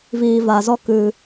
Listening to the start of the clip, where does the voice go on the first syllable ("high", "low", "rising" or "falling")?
low